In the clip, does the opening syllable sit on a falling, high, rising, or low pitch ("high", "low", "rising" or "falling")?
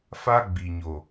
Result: high